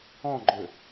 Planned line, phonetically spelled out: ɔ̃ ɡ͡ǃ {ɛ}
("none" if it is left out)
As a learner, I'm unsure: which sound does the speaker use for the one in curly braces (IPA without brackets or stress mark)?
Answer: ø